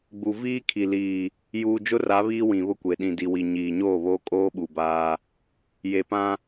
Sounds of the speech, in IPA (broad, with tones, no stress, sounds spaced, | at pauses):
ɡ͡b u˨ v iː˦ kʰ i˨ l iː˨ | j uː˨ d͡ʒ ʊ˦ r a˨˦ β iː˦ w ĩ˨ β ʊ˦ kʷ e˨ ɗ ĩ˨ d i˨ w i˨ ɲ iː˨ ɲ oː˦˨ β oː˦ kʼ oː˦ ɓ u˨ b aː˦ | j e˨ p ã˦